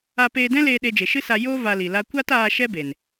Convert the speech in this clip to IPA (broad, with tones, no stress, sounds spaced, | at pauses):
a˧ p eː˧ d ɛ̃˦ l eː˧ ɗ e˧ d͡ʒ e˨ ʃ ɨ˦ s a˧ j o˦ v a˧ l i˨ l a˦ kʷ a˦ t aː˧ ʃ ɛ˦ b e˨ n